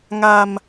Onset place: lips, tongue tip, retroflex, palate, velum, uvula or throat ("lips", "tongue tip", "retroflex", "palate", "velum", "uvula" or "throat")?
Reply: velum